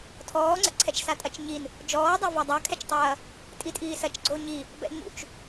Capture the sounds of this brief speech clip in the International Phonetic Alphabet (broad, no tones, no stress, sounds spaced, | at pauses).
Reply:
tʰ ɔː ŋ͡ǀ ɛ̰ ǀʰ ɛ t͡ʃ s a tʼ ɐ t͡ʃ ɲ i n | d͡ʒ ɔː dˤ a v a dˤ a kʰ ɛ t͡ʃ tˤ ɐː | tʼ i tʼ iː s ɐ t͡ʃ ɡ͡ǀ o ɲ i | b ɛ̰ ɲ ṵ t͡ʃ